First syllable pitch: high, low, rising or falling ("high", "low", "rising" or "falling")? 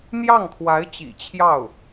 falling